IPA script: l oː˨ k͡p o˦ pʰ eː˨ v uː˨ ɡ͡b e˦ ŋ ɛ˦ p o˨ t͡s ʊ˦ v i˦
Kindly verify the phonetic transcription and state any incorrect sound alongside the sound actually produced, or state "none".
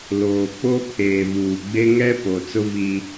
none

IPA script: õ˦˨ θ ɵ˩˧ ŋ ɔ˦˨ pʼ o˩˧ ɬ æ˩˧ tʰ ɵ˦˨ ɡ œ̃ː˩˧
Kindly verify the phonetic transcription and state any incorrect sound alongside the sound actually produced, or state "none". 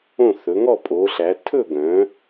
none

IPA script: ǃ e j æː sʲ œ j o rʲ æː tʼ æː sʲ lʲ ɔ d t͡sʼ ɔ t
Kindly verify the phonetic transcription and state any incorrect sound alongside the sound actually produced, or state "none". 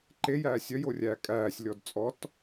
tʼ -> kʼ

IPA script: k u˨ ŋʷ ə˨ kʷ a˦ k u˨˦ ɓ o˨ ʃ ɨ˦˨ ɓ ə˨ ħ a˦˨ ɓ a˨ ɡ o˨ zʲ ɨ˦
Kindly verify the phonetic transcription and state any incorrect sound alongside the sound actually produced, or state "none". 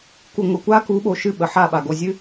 none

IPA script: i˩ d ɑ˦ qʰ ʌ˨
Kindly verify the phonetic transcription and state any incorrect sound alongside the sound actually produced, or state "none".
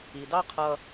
none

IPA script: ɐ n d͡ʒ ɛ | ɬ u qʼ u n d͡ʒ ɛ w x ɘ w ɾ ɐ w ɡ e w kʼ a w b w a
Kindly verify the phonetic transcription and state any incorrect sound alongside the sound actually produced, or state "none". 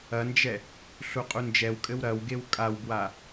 x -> kʼ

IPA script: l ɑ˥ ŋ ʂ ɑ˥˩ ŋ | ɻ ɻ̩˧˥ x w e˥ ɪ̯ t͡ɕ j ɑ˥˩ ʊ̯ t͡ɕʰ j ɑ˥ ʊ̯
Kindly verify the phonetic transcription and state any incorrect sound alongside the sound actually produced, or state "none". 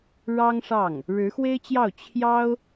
l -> ɻ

